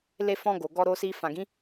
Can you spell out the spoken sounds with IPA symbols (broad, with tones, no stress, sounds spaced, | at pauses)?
l e˧ f ɔ̃˧ ɡ o˨ ɡ ɔ˧ ɾ o˧ s i˧ f ã˨ ɡ ĩ˨˦